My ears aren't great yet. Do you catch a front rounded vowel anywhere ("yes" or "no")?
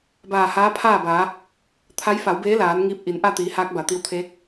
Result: no